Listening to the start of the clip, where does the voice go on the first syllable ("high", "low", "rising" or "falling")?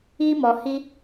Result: high